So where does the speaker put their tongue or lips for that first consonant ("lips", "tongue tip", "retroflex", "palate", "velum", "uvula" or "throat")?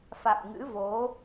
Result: lips